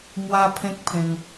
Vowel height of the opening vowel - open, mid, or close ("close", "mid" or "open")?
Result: open